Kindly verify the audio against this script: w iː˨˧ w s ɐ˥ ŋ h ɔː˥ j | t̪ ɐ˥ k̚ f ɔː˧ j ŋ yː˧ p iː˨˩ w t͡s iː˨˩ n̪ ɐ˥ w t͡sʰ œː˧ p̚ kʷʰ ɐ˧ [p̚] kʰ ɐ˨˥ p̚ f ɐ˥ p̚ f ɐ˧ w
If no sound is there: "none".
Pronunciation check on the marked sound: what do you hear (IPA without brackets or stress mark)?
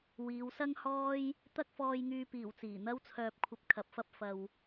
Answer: p̚